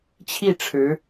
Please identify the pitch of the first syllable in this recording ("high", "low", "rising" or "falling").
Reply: falling